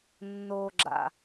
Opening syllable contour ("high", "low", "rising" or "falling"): low